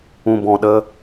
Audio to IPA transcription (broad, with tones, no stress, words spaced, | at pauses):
ũ˨ bɔ̃˨ ɗə˧